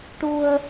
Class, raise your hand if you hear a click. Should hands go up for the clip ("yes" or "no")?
no